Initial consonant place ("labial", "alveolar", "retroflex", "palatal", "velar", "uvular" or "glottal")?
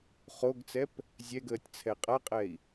uvular